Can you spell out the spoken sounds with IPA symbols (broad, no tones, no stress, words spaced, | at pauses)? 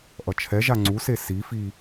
ʔʌt͡ʃʰɛʒa ŋ͡ǀuse sifi